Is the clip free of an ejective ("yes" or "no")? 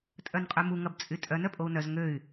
no